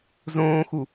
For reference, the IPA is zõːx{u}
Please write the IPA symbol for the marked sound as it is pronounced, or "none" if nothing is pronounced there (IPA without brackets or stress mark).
u